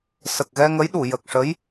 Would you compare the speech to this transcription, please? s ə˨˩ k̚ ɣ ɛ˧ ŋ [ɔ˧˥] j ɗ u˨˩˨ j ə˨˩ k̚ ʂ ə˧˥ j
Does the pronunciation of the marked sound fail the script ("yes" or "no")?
yes